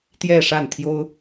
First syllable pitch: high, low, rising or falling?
falling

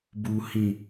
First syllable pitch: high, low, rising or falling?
high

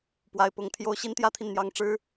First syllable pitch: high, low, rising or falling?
high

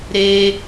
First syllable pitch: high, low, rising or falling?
high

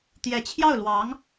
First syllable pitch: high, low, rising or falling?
rising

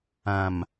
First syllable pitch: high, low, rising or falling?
low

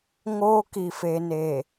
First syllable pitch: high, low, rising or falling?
high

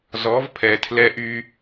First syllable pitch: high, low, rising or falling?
rising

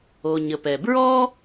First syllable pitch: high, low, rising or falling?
low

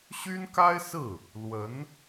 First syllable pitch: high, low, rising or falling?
high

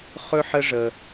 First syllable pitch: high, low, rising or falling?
high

